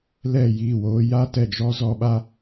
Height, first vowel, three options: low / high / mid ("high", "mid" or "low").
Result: mid